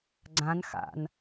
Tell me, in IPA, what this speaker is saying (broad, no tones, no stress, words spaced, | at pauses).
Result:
ɡ͡ǀãn xa̰n